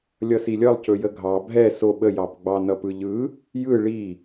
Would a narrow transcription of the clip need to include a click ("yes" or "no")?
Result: no